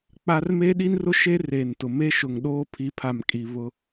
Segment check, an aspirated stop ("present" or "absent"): present